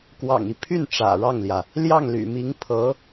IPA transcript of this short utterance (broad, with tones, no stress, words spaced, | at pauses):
kwɑ̰˨˩ŋi˦pʰy˥˩n ʈ͡ʂä̰˨˩ɻɑ˥˩ŋljä˩ | ljɑ˥˩ŋly̰˨˩mi˧˥ŋ pʰɤ˧˥